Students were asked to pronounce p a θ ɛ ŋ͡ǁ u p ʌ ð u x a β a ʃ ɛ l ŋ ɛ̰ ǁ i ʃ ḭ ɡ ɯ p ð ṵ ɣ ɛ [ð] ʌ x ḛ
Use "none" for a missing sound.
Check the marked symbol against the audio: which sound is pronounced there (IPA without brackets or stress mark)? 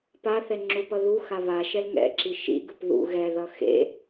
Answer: ð